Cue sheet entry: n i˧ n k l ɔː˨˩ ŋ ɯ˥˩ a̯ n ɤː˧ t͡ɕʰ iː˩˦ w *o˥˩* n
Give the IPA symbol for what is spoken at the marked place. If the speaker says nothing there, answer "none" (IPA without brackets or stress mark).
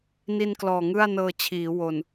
o˨˩